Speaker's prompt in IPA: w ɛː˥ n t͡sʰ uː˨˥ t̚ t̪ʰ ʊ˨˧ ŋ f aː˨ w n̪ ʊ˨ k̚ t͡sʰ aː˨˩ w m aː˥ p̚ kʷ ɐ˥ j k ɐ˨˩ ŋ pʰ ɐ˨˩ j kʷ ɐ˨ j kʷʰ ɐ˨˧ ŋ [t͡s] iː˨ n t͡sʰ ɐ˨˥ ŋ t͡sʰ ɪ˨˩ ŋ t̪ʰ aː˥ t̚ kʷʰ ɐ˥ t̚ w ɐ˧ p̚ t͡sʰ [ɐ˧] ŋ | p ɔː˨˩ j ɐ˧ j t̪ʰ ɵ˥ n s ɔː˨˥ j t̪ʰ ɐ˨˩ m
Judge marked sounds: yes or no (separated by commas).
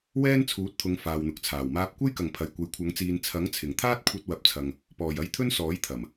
yes, yes